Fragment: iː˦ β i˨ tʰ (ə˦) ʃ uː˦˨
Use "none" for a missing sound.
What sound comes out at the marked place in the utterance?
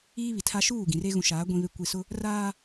a˦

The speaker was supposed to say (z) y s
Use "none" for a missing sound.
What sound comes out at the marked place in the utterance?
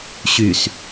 ɕ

